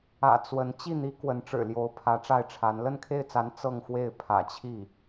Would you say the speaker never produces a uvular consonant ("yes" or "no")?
yes